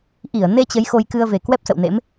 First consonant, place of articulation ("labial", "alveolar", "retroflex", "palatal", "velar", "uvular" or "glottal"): glottal